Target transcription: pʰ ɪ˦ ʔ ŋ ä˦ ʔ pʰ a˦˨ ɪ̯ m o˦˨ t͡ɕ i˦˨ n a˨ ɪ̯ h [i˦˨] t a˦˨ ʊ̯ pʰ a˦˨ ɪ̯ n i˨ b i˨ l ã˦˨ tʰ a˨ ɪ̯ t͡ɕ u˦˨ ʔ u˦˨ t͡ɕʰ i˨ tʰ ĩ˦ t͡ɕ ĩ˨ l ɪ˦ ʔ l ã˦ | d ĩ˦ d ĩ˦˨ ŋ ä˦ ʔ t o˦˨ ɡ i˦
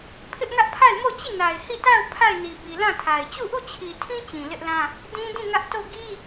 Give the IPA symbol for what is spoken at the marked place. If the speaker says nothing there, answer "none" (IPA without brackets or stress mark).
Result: i˦˨